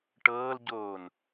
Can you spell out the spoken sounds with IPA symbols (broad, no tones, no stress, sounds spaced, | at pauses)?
ʈ ɤː l ɟ oː n